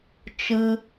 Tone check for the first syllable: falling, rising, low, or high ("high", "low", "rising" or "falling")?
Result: high